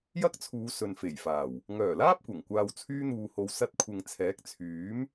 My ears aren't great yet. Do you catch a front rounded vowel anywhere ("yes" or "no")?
yes